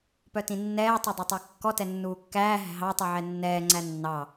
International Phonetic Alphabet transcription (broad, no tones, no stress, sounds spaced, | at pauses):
p œ t ĩ nː ɛː tˤ o dˤ o tˤ æ kː ɔ t ɛ nː uː kː æː ɦ æ̤ ɦ ɑ tˤ i ʕ ɛ nː ɛː ŋ͡ǀ æ nː ɑ